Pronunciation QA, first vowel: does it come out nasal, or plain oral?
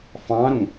nasal